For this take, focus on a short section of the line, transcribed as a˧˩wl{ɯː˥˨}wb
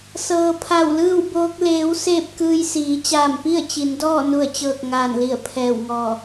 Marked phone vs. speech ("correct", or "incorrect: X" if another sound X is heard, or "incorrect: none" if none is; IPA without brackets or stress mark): correct